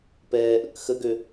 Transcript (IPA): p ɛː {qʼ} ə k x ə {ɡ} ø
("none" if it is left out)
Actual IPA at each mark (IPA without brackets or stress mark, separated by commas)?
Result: ʔ, ɡ